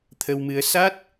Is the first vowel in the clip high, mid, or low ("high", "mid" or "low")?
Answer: mid